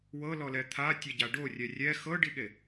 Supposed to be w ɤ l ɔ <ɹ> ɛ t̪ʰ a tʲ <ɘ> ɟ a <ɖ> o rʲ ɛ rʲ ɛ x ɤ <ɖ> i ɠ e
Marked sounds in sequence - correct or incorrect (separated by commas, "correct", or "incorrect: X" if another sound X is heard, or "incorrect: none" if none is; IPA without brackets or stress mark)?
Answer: incorrect: l, incorrect: ɛ, correct, correct